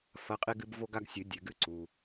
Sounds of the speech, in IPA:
f ɐ˨˦ qʼ e˦ ɡ ɨ˨˦ b v o˦ ɡ a˦ ɡ sʲ ɨ˨˩˦ dʲ ʉ˨ ɡ ɨ˦ ǀ u˨

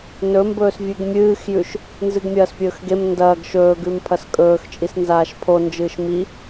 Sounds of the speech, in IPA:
n ɵ m b ɵː s vʲ ʉ ɡ mʲ ɨː x j ʉ ʃ | n z ɨ ɡ mʲ ɐː s pʲ ɵː x ɡ e m n d ɐː ɡ ʃ ɵː ɡ ʉ m pʰ ɐ s kʼ ɵː x t͡ʃʼ i s n z aː ʃ pʰ o n d͡ʒ ɨː ʃ m i

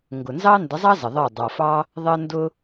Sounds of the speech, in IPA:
ŋ ɡ ʊ˨ n z ɑ˦ n d ə˨˦ zˤ ɑ˦ z ə˨ ðˤ əː˦˨ dˤ a˨ f ɑ˦ | ðˤ əː˦ n d ʊ˦

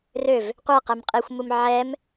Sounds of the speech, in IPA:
r ø v | qʷ ɛ q ɛ m qʼ i xʷ m u m ʕ ɛ m

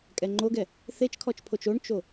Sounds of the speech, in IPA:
kʼ ɛ ŋ͡ǃ o ɡ ɛ | θ e t͡ʃ kʰ ɔ t͡ʃ pʰ o t͡ʃ o ɳ t͡ʃ o

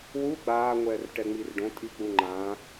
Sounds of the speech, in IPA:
w u ɡ͡b aː ŋʷ ɛː r ʈ ɛ ŋ͡m i r ɖ õ tʼ i k͡p u ŋ͡ǃ ã

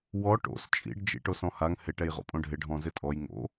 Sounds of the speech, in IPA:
w ɔ ʈ o̰ s t͡ʃʼ ḭ ɖ d͡ʒ ḭ ʈ o s ɔ̃ h a ŋ h ɪ ʈ ɛ j ʁ o̰ pʼ õ ɖʱ ɪ ɖʱ ɔ̃ z ɪ tʼ ɔ j ŋ o̰

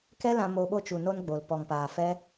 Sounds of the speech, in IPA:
k ɛ˦ l ã˧ m o˧ ɓ o˧ t͡ʃ u˨ n o˧ n ɡ͡b o˨ l p ɔ˨ ŋ p aː˨ f ɛ˦

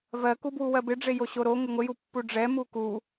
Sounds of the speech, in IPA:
v ɜ k u b w u w ɜ b ɪ ɖ͡ʐ e j o ɕ o ɾ o ŋ ɪ ŋʷ ɪ j u pː u ɖ͡ʐ ɛ m u k u

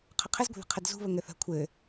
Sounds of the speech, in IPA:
qʰ ə qʰ ɘ z ɡʷ ə̤ ð ə̤ qʰ ə d z ṳ β ə ŋ ɘ θ ə̤ kʷʰ ɘ

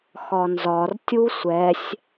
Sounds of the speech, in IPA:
x ɒ n z ɒ r tʲ u sʷ ɛ sʲ

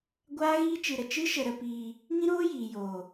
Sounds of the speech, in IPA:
ɡʷ aː˦ ɣ iː˦ t͡ʃ ɨ˧ ɾ ə˨ t͡ʃ ɨ˦ ʃ ə˧ ɾ ə˧ p iː˧ | ŋ ĩ˦ ɾ oː˦ j iː˨ j oː˨

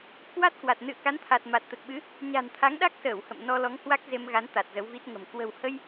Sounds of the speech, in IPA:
k w a˦˥ t̚ k w a˨˩ t̚ n ɨ̰˧˨ ə̯ k a˨˦ n t̪ʰ a˨˩ t̚ m a˨˩ t̚ t̪ ə˨˩ t̚ ɓ ɨ˨˦ | ɲ a̤˨˩ n t̪ʰ a˨˦ ŋ ɗ a˦˥ k̚ s əː˧˩ w h ə̰˧˨ m n ɔ˧ l ɔ˨˦ ŋ h w a˦˥ k̚ z e˧ m ɣ a˨˦ n t̪ a˨˩ t̚ z ə˨˦ w v i˦˥ t̚ ŋ ə̤˨˩ m k w ə̤˨˩ w h ə˧ j

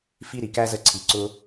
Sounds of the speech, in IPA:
f i˧ ɾ i˨ k æ˦ z ə˧ ǀʰ i˨ ǀ ʊ˧

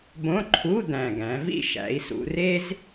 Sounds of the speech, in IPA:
b õ˧˥˧ ǃʰ u˧˥˧ d̪ æ̃˨˩ ɡ æ̃˩˧ v ḭ˥˩ ʃ æ̰˩˧ i̯ s ṵ˩˧ r e˥ z

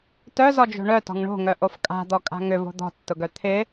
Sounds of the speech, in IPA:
t œ z ɔ d͡ʒ o̤ ɳ œ t ɔ̤ ŋ ɳ o̤ ŋ œ ʔ o f kʼ a̤ d̪ ɔ kʼ a̤ ŋ ʏ v o̤ d̪ ɔ̤ tː ʊ ɡ œ t̪ʰ ɪ

